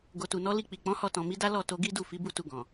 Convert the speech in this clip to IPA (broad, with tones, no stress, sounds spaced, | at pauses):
ɡ o˨ t u˨ n ɔ˨˦ l i˧ k͡p i˨ k͡p ɔ̃˨˦ h ɔ˧ t ɔ̃˨ m i˨˦ d a˦ l ɔ˦˨ t o˧ ɡ i˦ d u˦˨ f i˨˦ b u˦˨ t u˧ ɡ ɔ̃˨